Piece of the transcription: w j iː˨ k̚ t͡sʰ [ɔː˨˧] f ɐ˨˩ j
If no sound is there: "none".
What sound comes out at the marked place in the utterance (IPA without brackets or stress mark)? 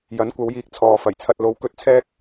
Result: ɔː˨